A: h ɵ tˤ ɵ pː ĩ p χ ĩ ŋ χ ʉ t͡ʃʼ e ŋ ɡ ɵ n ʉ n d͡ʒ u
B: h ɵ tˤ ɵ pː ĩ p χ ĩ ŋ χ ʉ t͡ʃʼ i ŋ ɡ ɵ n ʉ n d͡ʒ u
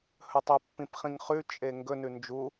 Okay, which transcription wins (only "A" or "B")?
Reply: A